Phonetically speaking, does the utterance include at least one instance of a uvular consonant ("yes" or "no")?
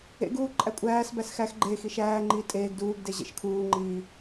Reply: no